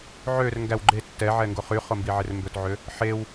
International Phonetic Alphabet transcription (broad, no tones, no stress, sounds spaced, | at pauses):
ʕ ø r ŋ ɡ æ w ɡ͡ǃ e tː ɛ ʕ ɛ ŋ ɡ o χ y χ o m b i ʕ e r m b ɵ t ʕ ø | ħ e w